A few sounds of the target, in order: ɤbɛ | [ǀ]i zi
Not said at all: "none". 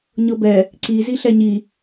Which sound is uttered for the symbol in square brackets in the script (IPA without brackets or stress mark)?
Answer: ǀ